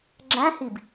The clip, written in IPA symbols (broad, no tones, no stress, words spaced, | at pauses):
ɡ͡ǁæ̃hib